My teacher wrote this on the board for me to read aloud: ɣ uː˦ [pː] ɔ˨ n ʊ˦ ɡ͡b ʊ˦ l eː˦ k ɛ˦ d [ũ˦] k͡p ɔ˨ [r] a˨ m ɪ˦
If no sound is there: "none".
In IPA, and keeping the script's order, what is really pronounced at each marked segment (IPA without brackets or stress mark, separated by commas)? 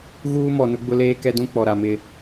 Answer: m, ũ˦, ɾ